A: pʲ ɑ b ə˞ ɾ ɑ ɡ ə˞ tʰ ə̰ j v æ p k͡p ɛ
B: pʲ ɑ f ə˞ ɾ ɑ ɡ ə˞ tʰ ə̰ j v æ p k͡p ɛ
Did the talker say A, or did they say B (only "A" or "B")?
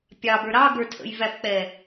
A